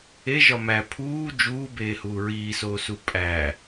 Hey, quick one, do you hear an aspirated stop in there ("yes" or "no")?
yes